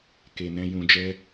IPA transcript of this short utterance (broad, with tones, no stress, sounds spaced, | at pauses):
k e˧ n ɛ̃˦ j ũ˧ d͡ʒ ɛ˦